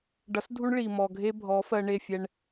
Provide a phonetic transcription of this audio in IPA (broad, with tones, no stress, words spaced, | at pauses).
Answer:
ɖʌ˨˦sdʱu˦ɳ ɭi˨ mɔ˨ɡʱe˦ bʱɔ˨˦fɜ˧ɳe˦˨fʲɛ˧ɳ